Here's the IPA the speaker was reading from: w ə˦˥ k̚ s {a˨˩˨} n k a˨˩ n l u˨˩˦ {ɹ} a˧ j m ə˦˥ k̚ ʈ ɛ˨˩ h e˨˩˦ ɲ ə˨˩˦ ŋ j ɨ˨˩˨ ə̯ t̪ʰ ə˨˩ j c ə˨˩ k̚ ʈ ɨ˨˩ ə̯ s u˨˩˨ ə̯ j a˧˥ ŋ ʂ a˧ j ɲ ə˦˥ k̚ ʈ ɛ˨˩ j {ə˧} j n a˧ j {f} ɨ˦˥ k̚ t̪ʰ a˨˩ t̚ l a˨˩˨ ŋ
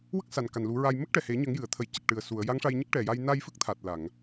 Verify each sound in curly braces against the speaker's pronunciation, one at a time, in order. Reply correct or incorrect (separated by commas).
incorrect, correct, incorrect, correct